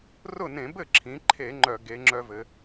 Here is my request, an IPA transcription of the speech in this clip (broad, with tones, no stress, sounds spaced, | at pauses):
r ʊ˥˨ n ẽ˧˩˧ b ɘ˥˨ ǁʰ ĩ˩˧ ǃʰ e˧˩˧ ŋ͡ǃ œ˧˩˧ ɡ e˩˧ ŋ͡ǁ œ˦ v ɘ˩˧